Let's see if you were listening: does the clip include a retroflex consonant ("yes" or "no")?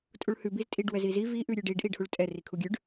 yes